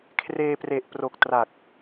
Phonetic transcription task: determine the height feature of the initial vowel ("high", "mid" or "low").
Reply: mid